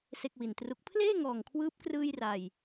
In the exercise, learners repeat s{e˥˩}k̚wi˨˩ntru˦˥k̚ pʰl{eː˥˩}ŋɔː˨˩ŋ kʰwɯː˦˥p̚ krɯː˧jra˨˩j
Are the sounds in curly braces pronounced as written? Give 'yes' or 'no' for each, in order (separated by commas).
yes, yes